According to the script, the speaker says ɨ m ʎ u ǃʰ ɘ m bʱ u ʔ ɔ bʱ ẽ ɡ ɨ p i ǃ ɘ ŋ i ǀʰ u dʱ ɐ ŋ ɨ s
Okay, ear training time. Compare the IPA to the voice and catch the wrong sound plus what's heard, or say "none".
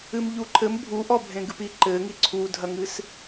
none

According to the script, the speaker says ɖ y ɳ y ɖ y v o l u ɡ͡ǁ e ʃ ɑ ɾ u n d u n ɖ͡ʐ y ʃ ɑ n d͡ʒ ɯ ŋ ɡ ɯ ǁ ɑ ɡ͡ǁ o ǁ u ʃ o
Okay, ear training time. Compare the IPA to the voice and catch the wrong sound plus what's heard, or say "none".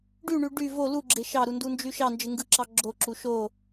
ɖ͡ʐ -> d͡ʒ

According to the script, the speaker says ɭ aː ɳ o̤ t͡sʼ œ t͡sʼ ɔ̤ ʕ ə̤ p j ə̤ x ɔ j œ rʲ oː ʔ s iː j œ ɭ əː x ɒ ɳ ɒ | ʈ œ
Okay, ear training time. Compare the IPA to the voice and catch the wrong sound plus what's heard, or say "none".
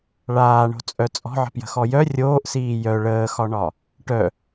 none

